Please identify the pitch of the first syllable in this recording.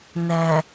low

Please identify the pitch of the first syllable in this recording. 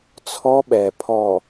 high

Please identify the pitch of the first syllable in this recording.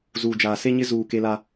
low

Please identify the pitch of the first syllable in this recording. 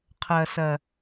low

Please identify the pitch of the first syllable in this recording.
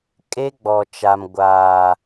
high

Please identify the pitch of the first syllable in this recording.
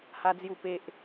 high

